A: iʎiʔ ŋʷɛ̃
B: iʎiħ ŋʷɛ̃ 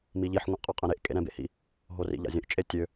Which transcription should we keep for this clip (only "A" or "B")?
B